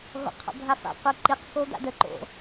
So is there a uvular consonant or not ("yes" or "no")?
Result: yes